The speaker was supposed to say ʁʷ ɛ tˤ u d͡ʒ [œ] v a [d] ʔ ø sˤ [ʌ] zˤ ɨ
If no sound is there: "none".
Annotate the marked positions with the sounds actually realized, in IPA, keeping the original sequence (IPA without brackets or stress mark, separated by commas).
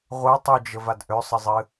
ə, d, ə